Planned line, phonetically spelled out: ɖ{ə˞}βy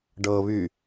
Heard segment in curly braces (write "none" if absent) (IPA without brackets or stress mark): ɤ